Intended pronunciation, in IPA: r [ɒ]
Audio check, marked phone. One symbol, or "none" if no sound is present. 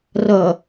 ʌ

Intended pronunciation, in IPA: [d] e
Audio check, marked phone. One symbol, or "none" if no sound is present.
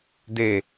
d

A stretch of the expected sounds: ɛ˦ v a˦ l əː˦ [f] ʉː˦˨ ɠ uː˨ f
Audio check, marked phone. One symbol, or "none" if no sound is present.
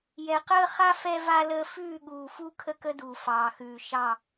f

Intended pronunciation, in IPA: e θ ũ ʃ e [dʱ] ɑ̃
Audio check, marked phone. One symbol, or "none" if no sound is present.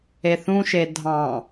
dʱ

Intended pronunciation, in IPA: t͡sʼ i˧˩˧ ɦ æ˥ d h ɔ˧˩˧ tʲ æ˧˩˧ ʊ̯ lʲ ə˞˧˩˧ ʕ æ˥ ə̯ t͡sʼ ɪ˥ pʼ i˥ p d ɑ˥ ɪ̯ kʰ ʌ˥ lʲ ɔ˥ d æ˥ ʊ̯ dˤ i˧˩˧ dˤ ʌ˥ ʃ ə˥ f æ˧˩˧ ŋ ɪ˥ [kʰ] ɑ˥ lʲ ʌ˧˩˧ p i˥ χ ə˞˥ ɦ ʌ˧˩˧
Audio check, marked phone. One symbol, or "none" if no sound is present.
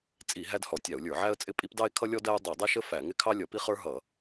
kʰ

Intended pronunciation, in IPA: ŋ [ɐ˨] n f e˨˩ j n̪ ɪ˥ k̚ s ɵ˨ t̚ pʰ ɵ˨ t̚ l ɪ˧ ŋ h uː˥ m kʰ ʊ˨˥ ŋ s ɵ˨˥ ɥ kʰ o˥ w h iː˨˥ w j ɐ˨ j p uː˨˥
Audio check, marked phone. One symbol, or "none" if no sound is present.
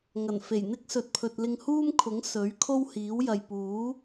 ɐ˨˩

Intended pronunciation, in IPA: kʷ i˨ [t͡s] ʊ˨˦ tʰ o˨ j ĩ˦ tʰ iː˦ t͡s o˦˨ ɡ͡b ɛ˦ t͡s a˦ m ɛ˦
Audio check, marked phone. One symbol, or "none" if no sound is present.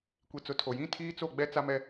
t͡s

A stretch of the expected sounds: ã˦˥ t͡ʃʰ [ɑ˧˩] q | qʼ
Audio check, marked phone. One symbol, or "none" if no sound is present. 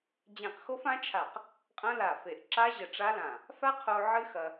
a˧˩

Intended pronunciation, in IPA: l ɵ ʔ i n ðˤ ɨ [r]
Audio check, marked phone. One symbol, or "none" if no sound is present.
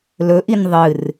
r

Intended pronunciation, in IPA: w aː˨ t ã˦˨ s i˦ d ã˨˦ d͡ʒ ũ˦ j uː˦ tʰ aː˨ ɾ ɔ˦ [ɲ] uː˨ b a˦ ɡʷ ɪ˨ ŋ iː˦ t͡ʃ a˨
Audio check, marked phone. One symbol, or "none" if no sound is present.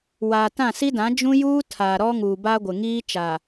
ŋ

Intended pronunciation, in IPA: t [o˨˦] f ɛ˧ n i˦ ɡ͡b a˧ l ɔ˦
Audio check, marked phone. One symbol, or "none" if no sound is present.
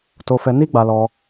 o˧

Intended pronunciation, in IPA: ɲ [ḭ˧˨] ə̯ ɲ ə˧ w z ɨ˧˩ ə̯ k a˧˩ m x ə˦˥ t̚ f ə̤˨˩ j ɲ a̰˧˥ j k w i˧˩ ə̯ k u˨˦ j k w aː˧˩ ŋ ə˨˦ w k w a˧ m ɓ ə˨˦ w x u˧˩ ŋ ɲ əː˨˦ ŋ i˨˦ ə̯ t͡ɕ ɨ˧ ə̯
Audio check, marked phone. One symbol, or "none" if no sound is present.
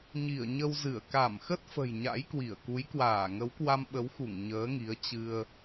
i˧˩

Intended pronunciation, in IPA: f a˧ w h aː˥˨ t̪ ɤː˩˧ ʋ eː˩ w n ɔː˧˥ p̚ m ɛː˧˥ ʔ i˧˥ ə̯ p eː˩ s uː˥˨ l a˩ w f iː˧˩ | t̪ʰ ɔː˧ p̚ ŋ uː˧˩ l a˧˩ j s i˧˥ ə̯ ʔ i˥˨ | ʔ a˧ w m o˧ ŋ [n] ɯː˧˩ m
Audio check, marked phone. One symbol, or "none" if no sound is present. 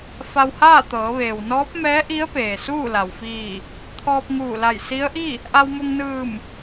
n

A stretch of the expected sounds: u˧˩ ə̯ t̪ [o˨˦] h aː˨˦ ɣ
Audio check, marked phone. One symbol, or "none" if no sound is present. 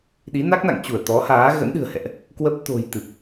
ɔ˨˦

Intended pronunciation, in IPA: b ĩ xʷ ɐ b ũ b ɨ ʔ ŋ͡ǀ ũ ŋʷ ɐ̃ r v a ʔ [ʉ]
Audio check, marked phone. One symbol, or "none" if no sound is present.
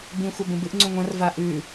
ʉ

